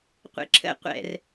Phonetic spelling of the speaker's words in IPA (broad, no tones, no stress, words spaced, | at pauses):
qʷḛǁʰə̰ qʷɛ̰r